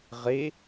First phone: ʁ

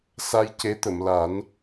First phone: s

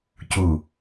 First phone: c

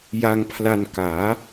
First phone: j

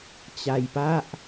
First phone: t͡ɕ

